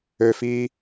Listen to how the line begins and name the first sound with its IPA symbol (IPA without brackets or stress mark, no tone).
ø